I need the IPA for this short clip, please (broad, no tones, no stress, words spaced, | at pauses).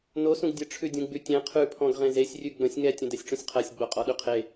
nosũɡ dʲə ʈ͡ʂʰʉdʲũɡ͡bʉtʲẽ qʰʉpʰɔ̃ɡ ʁẽzesʲ rʲʉɡ͡bə̃sʲ ŋɛtʲə̃ dɛsʲʈ͡ʂũsʲqʰɜsʲ ɡ͡boqʼɔɗʉqʰe